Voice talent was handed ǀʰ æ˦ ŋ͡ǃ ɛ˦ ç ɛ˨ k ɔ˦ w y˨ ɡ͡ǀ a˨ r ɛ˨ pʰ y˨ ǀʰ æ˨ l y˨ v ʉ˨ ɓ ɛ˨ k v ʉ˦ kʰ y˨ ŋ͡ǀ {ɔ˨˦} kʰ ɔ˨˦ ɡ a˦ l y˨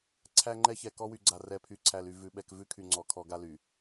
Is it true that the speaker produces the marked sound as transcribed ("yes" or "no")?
yes